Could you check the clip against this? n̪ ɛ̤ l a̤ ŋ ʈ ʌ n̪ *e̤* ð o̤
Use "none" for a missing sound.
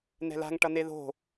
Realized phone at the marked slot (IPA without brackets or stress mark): e